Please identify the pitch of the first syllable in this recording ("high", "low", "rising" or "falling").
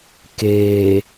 low